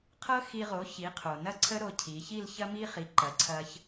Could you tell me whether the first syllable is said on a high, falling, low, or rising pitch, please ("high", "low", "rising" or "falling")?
high